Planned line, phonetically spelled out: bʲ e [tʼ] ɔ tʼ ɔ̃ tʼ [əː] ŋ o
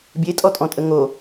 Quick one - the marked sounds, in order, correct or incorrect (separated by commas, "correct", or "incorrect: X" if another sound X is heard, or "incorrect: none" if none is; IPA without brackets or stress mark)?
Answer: correct, incorrect: ə